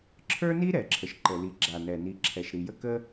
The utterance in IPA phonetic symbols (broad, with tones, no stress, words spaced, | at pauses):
ǁʰə˞˥ni˥ ɾɛ˩ǁʰə˩ʃ ǃə˩li˩ɡ͡ǁa˩nɛ˩ ni˩ ǁʰɛ˩ʃɾi˩jə˥ kə˥